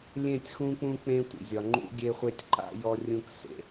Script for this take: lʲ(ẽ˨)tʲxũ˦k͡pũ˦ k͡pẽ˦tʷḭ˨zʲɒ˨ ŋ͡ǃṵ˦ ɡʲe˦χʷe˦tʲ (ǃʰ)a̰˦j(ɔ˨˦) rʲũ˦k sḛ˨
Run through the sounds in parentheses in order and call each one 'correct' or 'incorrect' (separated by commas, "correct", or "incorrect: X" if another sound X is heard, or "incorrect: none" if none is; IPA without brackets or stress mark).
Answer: incorrect: ẽ˦˨, incorrect: ǃ, incorrect: ɔ˦